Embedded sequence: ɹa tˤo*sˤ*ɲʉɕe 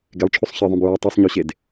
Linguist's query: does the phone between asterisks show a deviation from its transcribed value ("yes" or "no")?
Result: no